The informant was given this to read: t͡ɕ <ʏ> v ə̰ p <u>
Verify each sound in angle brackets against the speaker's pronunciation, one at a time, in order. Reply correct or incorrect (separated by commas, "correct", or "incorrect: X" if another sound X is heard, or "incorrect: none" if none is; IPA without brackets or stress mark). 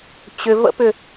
correct, incorrect: ʏ